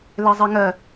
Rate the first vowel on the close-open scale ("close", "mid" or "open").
mid